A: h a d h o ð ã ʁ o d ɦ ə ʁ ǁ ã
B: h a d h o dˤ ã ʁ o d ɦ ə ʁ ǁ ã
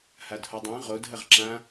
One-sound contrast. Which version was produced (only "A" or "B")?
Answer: B